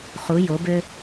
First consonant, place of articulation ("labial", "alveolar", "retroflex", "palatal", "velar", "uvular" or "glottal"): uvular